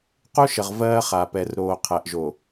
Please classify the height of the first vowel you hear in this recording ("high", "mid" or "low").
high